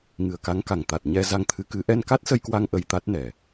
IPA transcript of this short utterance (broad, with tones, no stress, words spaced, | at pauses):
ŋɨ˨˩ə̯ka˨˦ŋka˨˩ŋ t̪a˨˩t̚ɲɛ˧ za˧ŋt̪ʰɨ˨˦kɨ˨˦ ʔɛ˧nka˦˥t̚sə˧jkwa˧ŋ ʔə˧jt̪a˦˥t̚nɛ˨˩